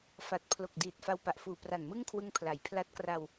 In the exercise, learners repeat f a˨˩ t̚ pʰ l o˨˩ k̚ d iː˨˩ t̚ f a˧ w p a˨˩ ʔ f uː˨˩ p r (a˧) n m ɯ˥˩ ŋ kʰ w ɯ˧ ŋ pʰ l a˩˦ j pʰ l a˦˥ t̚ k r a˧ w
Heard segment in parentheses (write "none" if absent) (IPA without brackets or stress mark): a˨˩